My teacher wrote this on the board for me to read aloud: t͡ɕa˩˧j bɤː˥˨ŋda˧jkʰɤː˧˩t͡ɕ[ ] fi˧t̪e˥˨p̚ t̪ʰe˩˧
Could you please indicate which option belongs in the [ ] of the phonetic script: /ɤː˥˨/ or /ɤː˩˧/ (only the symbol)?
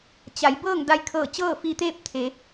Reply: ɤː˥˨